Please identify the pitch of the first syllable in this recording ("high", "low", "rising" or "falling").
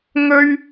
high